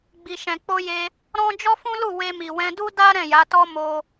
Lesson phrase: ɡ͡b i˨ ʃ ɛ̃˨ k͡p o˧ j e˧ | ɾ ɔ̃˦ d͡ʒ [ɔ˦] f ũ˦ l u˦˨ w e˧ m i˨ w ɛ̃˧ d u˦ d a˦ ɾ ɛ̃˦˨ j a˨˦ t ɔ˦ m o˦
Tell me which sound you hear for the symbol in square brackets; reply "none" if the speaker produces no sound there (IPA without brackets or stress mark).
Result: ɔ˦